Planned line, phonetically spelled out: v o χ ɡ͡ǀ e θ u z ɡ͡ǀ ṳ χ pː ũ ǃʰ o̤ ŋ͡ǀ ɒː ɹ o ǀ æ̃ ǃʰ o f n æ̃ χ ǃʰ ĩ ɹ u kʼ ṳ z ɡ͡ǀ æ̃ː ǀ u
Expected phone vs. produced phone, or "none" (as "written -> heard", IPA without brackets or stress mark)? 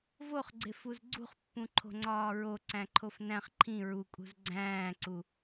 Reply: θ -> f